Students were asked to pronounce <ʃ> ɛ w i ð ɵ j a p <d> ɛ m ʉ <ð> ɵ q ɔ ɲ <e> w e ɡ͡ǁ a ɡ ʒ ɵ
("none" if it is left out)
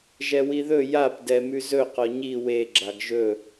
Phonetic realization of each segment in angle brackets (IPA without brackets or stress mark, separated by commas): ʒ, d, z, i